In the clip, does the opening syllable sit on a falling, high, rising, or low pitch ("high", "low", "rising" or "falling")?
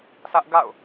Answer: high